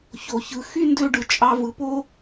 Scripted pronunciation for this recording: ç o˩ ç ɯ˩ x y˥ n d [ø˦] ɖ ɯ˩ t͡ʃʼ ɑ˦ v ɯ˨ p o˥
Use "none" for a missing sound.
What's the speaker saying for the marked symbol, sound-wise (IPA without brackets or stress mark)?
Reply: ø˦